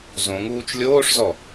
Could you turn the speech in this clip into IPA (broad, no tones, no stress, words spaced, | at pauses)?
zõ ŋuːt͡ʃlʲoːʂzɔ